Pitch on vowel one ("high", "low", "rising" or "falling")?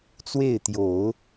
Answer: falling